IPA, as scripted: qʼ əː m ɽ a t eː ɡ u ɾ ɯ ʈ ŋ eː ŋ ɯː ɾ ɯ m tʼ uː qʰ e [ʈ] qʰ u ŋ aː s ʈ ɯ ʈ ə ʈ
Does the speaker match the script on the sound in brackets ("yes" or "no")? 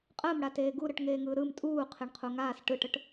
no